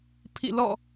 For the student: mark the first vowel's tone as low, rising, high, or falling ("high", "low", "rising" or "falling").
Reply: falling